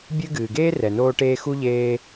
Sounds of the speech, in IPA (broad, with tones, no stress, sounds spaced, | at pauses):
bʲ ɨ˦ ɡ ɨː˩ ɡ eː˥ r ɛ˩ n oː˦ ʈ eː˦ x u˥ ʎ eː˦